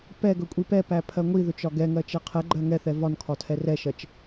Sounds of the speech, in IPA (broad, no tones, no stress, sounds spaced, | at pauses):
p ɛ ɡ ɵ kʷʼ i p ɛ p æ pʰ ɜ ŋʷ i ð ɵ t͡ʃ ɒ ɡ ɛ ŋ ɜ t͡ʃ ɛ qʰ ɛ ɡ͡ǃ ɜ ŋ ɛ θ ɛ v ɒ n kʰ ɒ tʰ ɛ r ɛ ʃ ɜ t͡ʃ